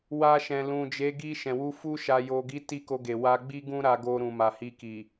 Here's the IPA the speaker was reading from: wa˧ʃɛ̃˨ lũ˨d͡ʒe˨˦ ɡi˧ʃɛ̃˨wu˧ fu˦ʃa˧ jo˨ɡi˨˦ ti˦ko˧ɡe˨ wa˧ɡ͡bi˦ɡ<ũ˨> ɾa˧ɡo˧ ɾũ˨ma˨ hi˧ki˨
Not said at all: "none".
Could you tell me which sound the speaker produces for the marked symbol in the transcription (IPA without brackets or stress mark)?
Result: ũ˦